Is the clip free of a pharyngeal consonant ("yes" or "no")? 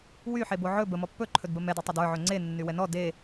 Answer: no